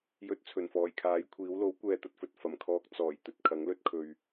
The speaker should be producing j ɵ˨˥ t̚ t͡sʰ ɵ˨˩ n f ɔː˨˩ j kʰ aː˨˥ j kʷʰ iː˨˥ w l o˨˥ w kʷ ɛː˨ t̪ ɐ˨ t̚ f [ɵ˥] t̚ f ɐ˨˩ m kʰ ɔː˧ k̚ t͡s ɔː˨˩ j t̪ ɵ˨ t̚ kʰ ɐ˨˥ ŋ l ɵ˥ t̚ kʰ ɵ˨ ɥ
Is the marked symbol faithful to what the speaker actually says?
no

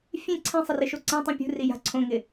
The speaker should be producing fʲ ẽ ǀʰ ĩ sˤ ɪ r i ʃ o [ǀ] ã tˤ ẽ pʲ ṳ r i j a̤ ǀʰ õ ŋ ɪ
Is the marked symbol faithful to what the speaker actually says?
yes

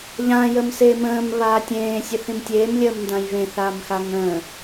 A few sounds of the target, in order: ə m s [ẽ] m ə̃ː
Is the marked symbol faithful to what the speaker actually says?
no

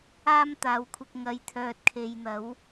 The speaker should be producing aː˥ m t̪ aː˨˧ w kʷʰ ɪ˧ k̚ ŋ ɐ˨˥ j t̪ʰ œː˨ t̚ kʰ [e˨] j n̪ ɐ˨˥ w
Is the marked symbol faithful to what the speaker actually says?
yes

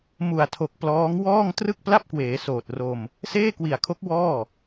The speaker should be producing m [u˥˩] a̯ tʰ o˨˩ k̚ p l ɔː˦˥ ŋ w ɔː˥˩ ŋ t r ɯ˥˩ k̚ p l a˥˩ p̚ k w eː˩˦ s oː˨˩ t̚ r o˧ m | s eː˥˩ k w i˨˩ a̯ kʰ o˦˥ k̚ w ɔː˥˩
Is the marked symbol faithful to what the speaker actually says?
no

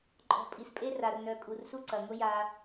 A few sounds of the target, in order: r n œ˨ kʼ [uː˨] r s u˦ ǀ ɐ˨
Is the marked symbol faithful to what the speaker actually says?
no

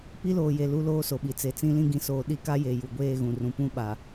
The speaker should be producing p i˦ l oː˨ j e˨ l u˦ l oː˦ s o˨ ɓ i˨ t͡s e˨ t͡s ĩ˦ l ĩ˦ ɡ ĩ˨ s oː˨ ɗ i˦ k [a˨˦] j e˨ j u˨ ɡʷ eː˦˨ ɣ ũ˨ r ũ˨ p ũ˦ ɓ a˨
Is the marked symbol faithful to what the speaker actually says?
no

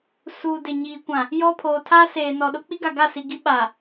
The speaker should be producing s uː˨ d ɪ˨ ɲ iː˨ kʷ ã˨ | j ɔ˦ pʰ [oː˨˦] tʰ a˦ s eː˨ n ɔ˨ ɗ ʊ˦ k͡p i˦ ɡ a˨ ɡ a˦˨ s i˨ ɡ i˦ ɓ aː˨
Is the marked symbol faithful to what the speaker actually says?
no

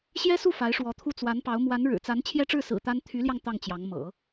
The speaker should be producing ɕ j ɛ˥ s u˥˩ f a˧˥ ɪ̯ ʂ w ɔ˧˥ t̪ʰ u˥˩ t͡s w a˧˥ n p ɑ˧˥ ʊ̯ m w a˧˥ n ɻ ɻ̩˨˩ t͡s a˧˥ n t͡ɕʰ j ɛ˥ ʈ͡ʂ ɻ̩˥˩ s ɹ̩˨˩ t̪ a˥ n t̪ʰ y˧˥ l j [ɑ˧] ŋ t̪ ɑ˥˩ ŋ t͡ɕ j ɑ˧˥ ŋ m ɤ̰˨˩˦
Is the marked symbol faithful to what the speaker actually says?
yes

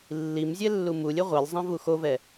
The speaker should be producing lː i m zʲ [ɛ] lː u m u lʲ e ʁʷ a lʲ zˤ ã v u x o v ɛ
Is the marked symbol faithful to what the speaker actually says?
yes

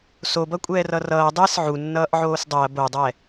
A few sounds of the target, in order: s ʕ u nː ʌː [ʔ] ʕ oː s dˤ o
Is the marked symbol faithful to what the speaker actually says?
yes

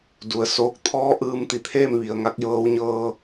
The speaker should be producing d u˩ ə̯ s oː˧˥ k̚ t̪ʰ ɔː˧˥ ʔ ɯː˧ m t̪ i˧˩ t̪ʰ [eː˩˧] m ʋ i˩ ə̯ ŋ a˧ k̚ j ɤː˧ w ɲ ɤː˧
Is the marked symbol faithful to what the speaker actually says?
no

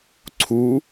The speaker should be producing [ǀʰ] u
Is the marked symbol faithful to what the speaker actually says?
yes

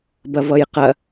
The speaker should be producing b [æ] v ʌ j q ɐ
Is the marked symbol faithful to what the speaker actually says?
no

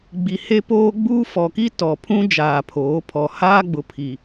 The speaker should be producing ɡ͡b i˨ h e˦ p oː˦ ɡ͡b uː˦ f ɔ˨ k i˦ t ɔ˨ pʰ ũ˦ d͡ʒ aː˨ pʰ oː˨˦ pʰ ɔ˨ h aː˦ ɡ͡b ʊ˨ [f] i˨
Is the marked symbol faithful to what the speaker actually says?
no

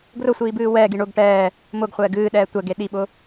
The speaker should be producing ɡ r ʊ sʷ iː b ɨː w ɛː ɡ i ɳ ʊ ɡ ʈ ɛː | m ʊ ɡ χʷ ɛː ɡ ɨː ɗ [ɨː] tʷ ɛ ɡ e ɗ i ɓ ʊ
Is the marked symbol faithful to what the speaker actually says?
no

